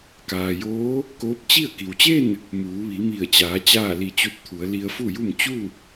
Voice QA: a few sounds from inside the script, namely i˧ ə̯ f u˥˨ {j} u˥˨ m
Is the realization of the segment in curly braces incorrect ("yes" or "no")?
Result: no